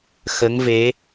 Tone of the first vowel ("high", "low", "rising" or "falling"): rising